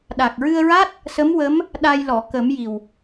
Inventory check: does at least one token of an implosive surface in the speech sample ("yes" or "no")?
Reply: yes